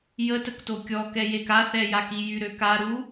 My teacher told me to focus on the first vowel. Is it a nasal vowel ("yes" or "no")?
no